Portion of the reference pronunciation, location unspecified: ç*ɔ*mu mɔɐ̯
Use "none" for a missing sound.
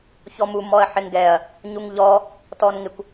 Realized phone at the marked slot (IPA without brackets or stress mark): ɔ